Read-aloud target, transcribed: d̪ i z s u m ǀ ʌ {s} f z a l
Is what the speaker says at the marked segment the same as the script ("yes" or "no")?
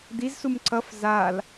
no